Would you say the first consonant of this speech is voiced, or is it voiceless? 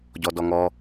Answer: voiced